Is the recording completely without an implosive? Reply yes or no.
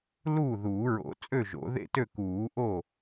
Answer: yes